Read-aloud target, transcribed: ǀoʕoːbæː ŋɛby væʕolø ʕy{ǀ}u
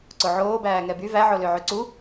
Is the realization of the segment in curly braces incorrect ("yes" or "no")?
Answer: no